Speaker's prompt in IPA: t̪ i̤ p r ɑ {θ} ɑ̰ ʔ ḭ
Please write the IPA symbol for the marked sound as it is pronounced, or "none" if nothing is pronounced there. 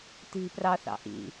θ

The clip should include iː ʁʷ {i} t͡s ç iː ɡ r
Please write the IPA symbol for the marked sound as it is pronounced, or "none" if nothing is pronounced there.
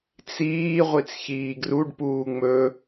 i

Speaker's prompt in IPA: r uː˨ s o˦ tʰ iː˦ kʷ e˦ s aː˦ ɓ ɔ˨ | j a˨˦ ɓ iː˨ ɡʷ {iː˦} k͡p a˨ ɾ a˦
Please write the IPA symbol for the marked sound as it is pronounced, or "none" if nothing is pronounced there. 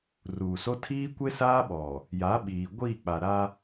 iː˦˨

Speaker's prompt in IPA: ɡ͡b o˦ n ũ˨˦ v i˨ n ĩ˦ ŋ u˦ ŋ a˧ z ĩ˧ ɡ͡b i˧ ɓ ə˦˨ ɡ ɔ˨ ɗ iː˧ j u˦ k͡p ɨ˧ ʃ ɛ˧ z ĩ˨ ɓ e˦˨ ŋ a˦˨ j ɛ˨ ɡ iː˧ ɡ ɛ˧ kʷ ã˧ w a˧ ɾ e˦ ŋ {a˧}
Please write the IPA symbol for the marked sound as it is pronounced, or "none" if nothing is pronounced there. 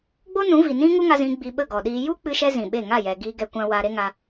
a˧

